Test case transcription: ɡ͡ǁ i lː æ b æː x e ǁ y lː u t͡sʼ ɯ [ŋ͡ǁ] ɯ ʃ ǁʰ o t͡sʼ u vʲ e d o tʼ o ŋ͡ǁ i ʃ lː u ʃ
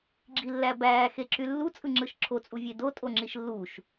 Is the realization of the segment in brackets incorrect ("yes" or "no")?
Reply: no